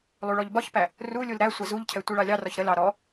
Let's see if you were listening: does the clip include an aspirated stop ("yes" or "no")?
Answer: yes